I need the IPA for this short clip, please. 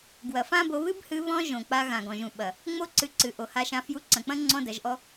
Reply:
ɡ w ɐ˨ f ã˦ b o˧ β ɨ˦ b h ɨ˧ β ɔ̃˦ ʒ õ˨ k͡p a˧ ɣ ã˨ ɡ ɔ̃˨ ʒ ũ˨ ɓ ɐ˨ | ŋ͡m o˦ ǀ ɨ˧ ǀ ɨ˨ ʔ o˨ h a˧ ʃ ã˧ f j u˧ ǀ ɐ̃˨ k͡p ɐ̃˦ ŋ͡ǀ ɔ̃˦ d ɐ˨˦ ʒ ʔ ɔ˦

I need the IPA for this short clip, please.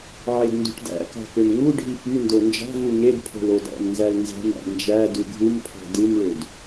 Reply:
ʕ e d n d ṳ ʈ d æ̰ k ɑ̤ k ø m ŋ u ɖʱ i p y n d o n d͡ʒ ɑ̤ v u ŋ e d pʰ o̤ l o d ɑ̰ m n z æ l n z ɑ̤ m æ̰ n d͡ʒ æ d u ɡʱ u m pʰ ɑ̤ d ɯ m ɭ ø d

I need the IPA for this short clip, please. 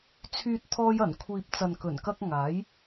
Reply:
t͡sʰ yː˧ t̚ t̪ʰ ɔː˧ j ɐ˨˩ n kʷʰ iː˨ p̚ t͡s ɐ˨ n k ɵ˨˩ n k ɐ˧ k̚ ŋ aː˨˥ j

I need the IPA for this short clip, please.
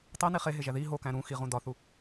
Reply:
tˤ e n i χ e ɦ e ʒ æ ð i ɦ o k æ̃ ɾ ũ x i ʁ ũ d ɒ θ u

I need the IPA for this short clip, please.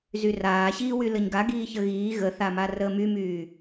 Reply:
z y r aː ɕ iː w y l ə ɲ ɡ a ɡ iː ç ə ɣ iː ɣ ə θ a m a r əː m y m yː

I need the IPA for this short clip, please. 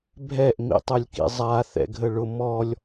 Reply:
bʱ ɛ ʔ m ḭ tˤ œ lʲ k ḭ zˤ a θ ɛ̰ ɡʱ ə ɭ ʊ m ɔ lʲ

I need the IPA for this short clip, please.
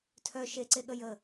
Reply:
tʰ œ ʃ e ǀ e ɠ ə j ə

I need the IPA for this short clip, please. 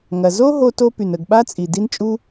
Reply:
ŋ ɐ˩ z o˥ ɦ o˥ t o˥ p y˩ n ə˩ ɡ ɓ a˥ t͡sʼ i˩ d i˥ n t͡ʃʼ u˥

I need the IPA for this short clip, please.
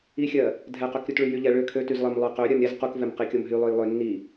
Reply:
i xʲ ɜ | dʱ ɛ q ø k ɾʲ u t ɭ y j y ʎ ɛ ɭ ø kʰ ø t y z lˠ ɜ m lˠ ø q ø ɾʲ ɜ m ɾʲ ɛ z q u k v ɛ m q i kʲ o m ɦ y lˠ ø j lˠ ø nː i

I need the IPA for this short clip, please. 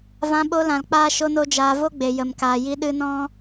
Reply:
v ã˧ ɓ o˧ l ã˨ l k͡p aː˦ ʃ o˦ n o˦ d͡ʒ aː˧ v o˦ ɡ͡b e˨ j ə˨ m k aː˨ j i˧ ɗ ɨ˧ n ɔ̃˦

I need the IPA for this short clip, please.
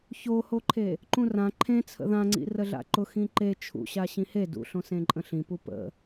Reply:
ç o h o ǃʰ e | ǃ ũ r ã ǃʰ ẽ t͡sʰ ə̰ ð ã ŋ͡ǀ ḭ r ə ɮ a̰ ǃ ʊ x ĩ ǃ e t͡ʃʰ ṵ ɕ a ɕ ĩ h e d ṵ ɬ õ s ẽ ǃʼ ə̃ ɬ ĩ p u p ə̰

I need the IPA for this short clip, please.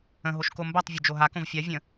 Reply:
ə̃ ɦ o ʃ k o m b a tˤ vʲ o d͡ʒ o ɦ a k õ v fʲ a vʲ ə̃

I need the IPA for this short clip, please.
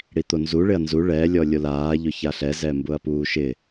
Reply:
ɽ i t̪ o n z u ɭ ɪ ɐ̯ n z u ɭ ɛ lʲ ɔ lʲ o l aː ʎ ʊ ç a ɬ ɛ z ɛ m b ʊ ɐ̯ p uː ʃ ɪ

